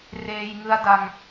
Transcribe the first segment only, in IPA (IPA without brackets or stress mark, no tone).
r